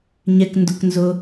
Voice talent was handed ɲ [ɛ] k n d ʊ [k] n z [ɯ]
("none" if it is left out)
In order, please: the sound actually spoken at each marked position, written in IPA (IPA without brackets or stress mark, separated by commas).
ɛ, k, ʊ